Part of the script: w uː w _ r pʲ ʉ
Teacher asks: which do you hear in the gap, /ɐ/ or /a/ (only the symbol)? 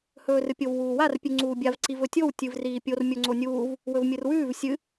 a